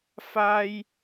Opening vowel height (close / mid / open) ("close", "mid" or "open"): open